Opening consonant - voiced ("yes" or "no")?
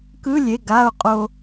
no